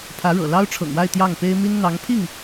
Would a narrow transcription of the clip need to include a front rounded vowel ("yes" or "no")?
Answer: no